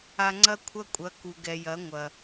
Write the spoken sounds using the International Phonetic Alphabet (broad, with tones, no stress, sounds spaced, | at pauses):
a˧ ŋ͡ǀ ɐ˦ kʷʰ ɐ˦ kʷʼ ɐ˨˦ k u˨ ɡ ɛ˨ j ɐ˨˦ ŋʷ ɐ˨